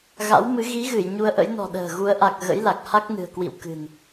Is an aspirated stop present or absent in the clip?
absent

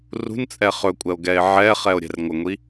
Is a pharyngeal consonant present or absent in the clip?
present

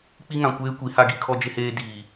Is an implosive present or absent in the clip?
absent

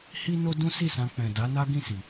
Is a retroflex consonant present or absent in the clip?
absent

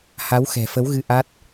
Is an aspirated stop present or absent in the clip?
absent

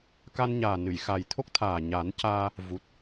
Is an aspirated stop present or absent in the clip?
present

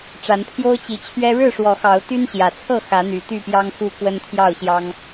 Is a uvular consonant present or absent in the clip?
absent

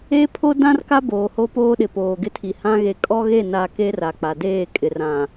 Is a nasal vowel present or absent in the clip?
present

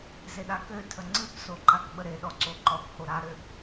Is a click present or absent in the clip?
present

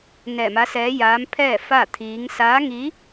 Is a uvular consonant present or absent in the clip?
absent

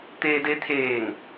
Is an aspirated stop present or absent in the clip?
present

